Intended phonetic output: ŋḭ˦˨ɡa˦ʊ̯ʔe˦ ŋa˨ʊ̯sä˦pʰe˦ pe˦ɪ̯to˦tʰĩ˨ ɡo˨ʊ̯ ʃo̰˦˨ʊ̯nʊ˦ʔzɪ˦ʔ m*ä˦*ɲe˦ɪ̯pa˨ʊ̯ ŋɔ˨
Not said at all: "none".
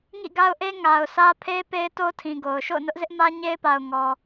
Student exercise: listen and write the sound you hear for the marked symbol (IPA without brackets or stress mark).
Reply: ä˦